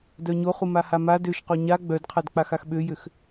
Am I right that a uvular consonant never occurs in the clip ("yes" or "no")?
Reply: no